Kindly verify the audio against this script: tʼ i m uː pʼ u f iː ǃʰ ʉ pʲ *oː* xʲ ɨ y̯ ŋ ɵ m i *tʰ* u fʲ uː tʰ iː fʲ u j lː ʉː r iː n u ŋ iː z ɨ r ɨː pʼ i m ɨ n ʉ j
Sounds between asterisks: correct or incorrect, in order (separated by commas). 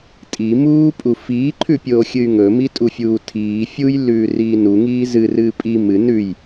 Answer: correct, incorrect